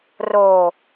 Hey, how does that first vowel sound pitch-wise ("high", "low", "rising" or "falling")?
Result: low